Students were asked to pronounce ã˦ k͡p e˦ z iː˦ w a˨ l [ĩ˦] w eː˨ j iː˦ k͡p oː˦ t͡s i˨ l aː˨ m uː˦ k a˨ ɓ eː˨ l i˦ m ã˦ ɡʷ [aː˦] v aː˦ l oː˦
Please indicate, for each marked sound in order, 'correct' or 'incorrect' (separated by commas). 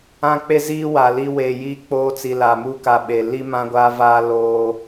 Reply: incorrect, correct